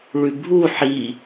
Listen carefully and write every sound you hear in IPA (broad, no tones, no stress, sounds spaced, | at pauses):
ɭ ʉ bʱ u ħ i